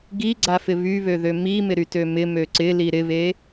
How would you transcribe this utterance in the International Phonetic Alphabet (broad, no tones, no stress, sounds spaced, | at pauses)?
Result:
ɡ i ɡ͡ǀ a f ɪ β y β ø ð ø m i m ɪ ɾ y t ø m ɪ m ø ǀ ɪ l i ɾ ɪ β e